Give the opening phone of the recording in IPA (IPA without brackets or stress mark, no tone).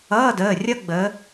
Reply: ʌː